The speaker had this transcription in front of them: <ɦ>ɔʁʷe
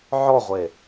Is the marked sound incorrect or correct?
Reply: incorrect